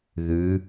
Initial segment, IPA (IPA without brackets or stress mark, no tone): ð